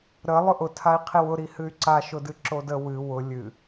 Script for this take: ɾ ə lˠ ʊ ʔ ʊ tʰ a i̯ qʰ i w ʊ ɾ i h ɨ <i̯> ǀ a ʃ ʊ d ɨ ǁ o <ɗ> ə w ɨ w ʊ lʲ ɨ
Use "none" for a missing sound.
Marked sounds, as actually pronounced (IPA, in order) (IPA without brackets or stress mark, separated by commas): y̯, d